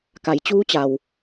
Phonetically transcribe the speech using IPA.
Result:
k a˩˧ j t͡ɕ uː˧˥ t͡ɕ a˩ w

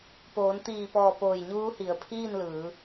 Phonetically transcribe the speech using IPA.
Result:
p oː˩˧ n t̪ iː˧˩ p ɔː˧˩ p oː˧˩ j ɲ uː˧˥ h i˩˧ ə̯ pʰ iː˥˨ n l ɯː˩˧

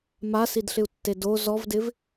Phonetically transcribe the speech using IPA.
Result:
m a s i d ɬ ɪ u̯ tː e d o z ɔ v d ɪ v

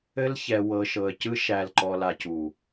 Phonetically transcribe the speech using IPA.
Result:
ɘ˧ l ç ɛ˨ w ɤ˨ ʃ ɤ˨ ə̯ c ɯ˧ ʃ æ˨ l ǃ ɔ˨ l a˨ c u˨

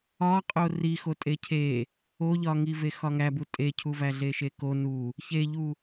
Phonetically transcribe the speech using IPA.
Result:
ɒ qʼ o r i x o tʼ e cʰ e | o ʎ ɒ ŋ i v e x ɒ ŋ æ b u tʼ e cʰ u v æ ɮ e ʃ e k o n u | ç e ʎ u

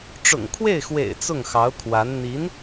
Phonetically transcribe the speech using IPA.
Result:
ʈ͡ʂ ʊ̰˨˩ ŋ kʰ w e˥˩ ɪ̯ x w ḛ˨˩ ɪ̯ t͡s ʊ˥˩ ŋ x ɑ˧˥ ʊ̯ kʰ w a˧˥ n n̪ i˧˥ n

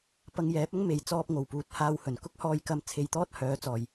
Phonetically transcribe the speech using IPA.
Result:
p ɐ˧ ŋ j ɛː˨˥ p̚ ɐ˥ ŋ m e˧ j t͡s ɔː˧ p̚ ŋ o˨˩ w p uː˨ t̚ h aː˧ w h ɵ˨˩ n k ʊ˥ k̚ h ɔː˧ j k ɐ˧ m t͡sʰ e˨ j t̪ ɔː˥ t̚ h œː˨˥ t͡s ɔː˨˩ j

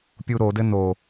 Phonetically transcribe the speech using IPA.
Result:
pʲ u ɾ o d ɘ n o

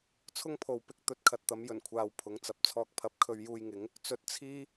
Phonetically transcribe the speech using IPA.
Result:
t͡sʰ ʊ˥ ŋ pʰ o˨ w p ɪ˧ k̚ t̪ ɵ˧ t̚ kʰ ɐ˨ t̚ t̪ ɐ˨˥ m j ɵ˨˩ n kʷʰ aː˨ w pʰ ʊ˨˥ ŋ t͡s ɐ˨ p̚ t͡sʰ ɔː˧ k̚ pʰ ɐ˨˥ p̚ kʰ ɵ˧ ɥ j uː˧ j ŋ ɪ˨˥ ŋ | t͡s ɵ˧ t̚ t͡sʰ iː˥

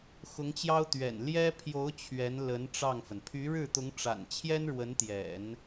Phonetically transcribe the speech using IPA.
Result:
x ʊ˧˥ ŋ t͡ɕ j ɑ˥ ʊ̯ t̪ ɥ ɛ̰˨˩ n l j ɛ˥ pʰ j o˧˥ ʊ̯ t͡ɕʰ ɥ ɛ˧˥ n l ə˧˥ n ʈ͡ʂ ɑ˥˩ ŋ f ə˩ n pʰ y˧˥ ɻ ɻ̩˥˩ t̪ ʊ˧˥ ŋ ʈ͡ʂ a̰˨˩ n t͡ɕʰ j ɛ˥ n ɻ w ə˧˥ n t̪ j ɛ̰˨˩˦ n

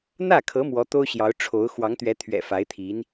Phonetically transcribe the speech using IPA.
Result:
n̪ ä˥˩ kʰ ɤ˧˥ m w ɔ˧˥ t̪ o˥ ʊ̯ ɕ j ɑ˧˥ ʊ̯ ʈ͡ʂʰ o˧˥ ʊ̯ x w ɑ˧˥ ŋ t̪ ɥ ɛ˧˥ t̪ʰ ɥ ɛ̰˨˩ f a˧˥ ɪ̯ t̪ʰ i˧˥ n

